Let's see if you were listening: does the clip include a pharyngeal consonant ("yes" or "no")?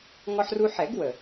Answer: yes